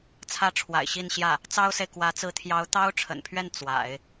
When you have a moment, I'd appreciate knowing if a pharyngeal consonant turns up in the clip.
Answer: no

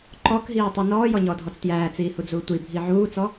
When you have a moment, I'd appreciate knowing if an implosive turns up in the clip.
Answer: no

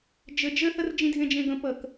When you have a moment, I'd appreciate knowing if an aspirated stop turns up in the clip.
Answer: no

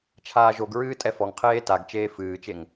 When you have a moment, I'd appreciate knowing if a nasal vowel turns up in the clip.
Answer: no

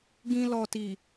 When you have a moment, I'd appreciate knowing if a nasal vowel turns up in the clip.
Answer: yes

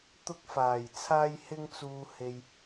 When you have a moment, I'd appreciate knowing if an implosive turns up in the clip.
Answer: no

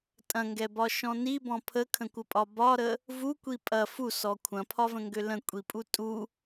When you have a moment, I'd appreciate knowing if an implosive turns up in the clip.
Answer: no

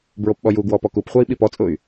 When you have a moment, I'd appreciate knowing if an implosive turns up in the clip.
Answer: yes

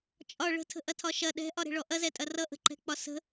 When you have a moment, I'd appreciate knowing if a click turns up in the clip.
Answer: yes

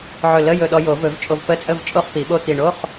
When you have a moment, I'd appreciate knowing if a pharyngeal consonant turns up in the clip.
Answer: yes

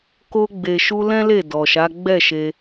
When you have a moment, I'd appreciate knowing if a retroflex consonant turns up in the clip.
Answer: no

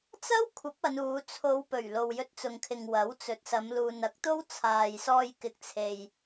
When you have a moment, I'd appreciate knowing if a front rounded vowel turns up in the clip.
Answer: no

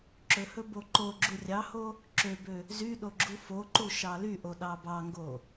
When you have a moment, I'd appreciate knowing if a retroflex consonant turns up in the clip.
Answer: no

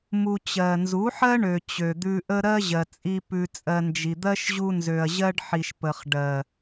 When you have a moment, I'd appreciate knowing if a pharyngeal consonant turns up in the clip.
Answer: yes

